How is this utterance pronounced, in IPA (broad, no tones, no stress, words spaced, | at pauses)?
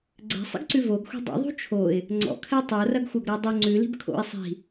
ɡ͡ǀɛ̤sˤḭɡǀʉ voɡxʷi̤ dˤṵðˤṳ t͡ʃʰoɪ̯ | ŋ͡ǀɔ̰kʰɛ tˤorɐɡxʷɐɡɾo dˤo ŋ͡ǀʉli̤b kʰo̰ɪ̯ sˤi̤